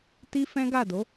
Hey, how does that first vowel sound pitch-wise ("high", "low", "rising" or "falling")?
high